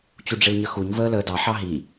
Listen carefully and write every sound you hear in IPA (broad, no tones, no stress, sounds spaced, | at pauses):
t͡ɕ u ɖ͡ʐ ɪ l ɲ ə x u ɲ v əː l əː d ɑ ħ ɑ ɦ i